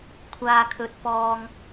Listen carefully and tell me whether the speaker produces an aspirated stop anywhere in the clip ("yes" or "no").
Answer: yes